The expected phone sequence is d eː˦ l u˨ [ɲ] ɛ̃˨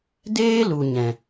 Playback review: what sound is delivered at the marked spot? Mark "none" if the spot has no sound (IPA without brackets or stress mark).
ɲ